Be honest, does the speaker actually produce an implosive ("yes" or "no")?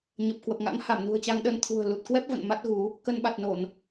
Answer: yes